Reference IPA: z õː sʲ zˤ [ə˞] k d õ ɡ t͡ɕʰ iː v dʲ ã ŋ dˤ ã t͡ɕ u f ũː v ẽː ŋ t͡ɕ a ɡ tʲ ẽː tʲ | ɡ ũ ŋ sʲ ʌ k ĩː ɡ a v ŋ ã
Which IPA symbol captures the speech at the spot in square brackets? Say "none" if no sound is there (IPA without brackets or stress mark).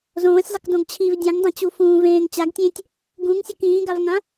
ʌ